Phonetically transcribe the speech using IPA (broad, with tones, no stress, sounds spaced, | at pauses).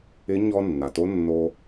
ɪ˧˥ ɲ ɔ˧ nː a˩ t o˧˥ nː o˧